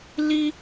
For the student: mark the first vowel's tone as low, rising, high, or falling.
high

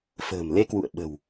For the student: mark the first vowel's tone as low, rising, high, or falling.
low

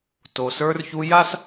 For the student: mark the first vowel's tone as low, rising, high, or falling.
low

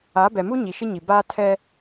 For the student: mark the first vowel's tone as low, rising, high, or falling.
rising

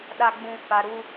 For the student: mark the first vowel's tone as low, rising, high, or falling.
low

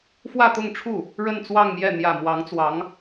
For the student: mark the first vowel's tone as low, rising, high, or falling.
falling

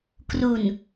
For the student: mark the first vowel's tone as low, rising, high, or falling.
low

